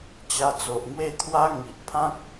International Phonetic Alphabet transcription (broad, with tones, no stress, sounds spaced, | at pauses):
t͡ɕ a˧ t͡s o˨ ʔ ŋ w e˥˧ t̪ʰ w a˦ ŋ i˨ ʔ pʰ ã˦ k̚